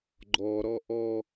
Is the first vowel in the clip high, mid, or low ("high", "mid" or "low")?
mid